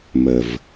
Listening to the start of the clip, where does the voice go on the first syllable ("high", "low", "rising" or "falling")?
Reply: low